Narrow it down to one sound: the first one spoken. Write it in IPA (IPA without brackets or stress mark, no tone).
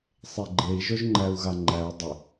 sˤ